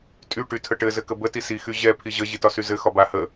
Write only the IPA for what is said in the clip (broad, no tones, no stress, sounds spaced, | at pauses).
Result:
tʼ y ʈ y tʰ ə ʈ ɘ z ɘ k ə b ə t i s i x y ʑ ɛ pʰ i ʑ ə ʑ i t ɒ s y z ɘ x ɒ b a h ə